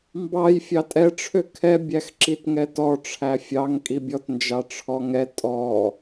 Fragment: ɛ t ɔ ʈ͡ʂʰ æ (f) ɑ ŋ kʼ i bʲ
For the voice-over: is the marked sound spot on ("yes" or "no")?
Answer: no